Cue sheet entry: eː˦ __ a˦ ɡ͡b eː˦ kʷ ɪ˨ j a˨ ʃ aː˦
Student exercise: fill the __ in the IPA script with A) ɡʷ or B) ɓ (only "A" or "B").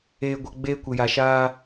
A